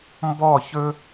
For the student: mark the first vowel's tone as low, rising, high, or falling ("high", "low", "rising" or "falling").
falling